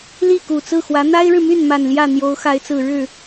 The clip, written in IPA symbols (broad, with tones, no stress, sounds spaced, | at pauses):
l i˥˩ k u˨˩ t͡s ɹ̩˥˩ x w ä˧˥ n̪ a˥ ɪ̯ ɻ ɻ̩˨ m y˥˩ n m a˨˩ n l j ä˥˩ n̪ j o˧˥ ʊ̯ x a˧˥ ɪ̯ t͡s ɹ̩˨˩ ɻ ɻ̩˥˩